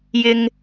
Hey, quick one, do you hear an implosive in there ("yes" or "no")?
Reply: no